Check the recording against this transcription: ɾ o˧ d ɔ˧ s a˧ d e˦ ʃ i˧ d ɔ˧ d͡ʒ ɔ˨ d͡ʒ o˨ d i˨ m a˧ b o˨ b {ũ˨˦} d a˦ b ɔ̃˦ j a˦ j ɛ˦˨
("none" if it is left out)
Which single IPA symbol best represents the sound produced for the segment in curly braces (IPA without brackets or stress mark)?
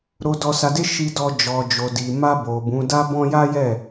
ũ˨˦